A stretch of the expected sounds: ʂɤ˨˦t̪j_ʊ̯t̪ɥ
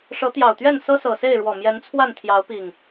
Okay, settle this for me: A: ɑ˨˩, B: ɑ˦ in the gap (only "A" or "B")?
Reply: A